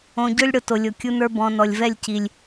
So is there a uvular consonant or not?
no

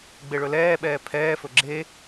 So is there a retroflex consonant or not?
yes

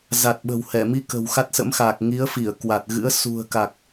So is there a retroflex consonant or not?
no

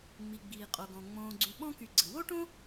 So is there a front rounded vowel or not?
yes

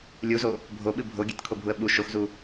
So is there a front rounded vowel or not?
no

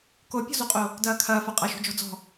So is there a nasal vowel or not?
no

